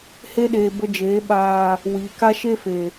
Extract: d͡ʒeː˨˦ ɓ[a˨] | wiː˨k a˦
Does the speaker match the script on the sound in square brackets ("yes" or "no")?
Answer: no